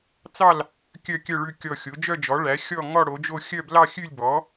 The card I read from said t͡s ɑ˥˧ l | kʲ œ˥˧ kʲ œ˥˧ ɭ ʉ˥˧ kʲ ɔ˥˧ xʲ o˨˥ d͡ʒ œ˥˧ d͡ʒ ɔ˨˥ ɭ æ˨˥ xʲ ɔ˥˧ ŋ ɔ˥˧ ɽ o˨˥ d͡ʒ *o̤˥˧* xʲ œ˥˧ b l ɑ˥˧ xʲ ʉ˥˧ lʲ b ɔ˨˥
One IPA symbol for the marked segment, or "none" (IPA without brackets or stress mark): o˥˧